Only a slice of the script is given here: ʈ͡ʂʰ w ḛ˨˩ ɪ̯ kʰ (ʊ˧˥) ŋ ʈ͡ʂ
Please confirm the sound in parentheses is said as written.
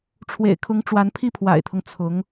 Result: yes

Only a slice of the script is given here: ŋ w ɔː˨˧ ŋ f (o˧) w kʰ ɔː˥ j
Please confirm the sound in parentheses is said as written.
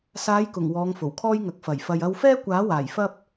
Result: no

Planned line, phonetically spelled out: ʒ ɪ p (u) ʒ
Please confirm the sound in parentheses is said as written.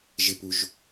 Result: yes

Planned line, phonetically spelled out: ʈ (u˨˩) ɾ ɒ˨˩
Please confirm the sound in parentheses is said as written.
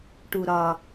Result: yes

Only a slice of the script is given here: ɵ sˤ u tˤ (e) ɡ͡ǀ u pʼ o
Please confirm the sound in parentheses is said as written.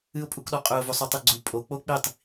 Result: no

